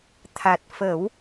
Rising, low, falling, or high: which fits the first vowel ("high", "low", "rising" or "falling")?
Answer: low